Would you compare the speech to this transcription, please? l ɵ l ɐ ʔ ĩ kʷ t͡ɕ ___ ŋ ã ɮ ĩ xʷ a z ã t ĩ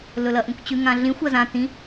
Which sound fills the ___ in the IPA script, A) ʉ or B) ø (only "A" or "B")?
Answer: A